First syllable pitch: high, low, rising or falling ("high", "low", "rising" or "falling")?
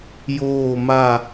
falling